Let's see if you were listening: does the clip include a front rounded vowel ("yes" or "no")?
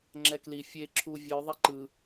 no